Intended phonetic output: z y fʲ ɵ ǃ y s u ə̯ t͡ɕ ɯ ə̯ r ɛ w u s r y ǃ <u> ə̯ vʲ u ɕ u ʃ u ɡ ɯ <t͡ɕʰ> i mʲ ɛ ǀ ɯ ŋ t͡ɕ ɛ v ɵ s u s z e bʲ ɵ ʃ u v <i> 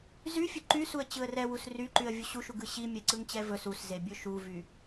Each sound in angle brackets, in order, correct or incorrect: incorrect, incorrect, incorrect

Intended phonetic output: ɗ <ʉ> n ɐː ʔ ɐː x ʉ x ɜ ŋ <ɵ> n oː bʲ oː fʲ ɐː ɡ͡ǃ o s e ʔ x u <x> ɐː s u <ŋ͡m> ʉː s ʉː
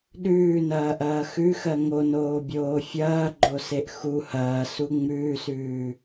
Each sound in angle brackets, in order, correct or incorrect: incorrect, incorrect, incorrect, correct

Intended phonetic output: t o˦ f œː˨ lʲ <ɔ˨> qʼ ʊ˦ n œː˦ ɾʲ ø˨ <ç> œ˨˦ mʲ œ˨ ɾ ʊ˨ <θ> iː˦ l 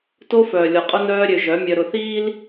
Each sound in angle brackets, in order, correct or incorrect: correct, incorrect, correct

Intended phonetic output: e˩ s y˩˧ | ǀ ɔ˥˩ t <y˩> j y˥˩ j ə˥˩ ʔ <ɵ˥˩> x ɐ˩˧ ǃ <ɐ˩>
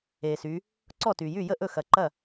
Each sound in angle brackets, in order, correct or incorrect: correct, correct, incorrect

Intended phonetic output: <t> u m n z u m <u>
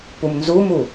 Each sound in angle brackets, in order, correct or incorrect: incorrect, correct

